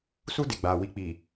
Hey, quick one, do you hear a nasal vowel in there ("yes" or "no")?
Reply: no